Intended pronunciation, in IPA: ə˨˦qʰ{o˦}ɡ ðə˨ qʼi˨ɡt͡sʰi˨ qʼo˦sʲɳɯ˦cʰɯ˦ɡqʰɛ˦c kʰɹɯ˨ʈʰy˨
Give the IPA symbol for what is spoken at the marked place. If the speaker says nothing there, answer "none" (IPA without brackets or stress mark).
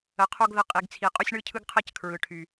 o˦